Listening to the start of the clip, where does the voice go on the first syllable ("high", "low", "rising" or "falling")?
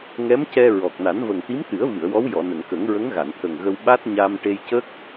rising